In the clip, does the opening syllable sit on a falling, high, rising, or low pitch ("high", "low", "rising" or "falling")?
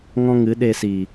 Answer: high